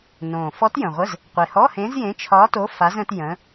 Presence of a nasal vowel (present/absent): present